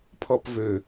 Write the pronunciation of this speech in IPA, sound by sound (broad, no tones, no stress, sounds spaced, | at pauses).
pʰ ɔ p v ø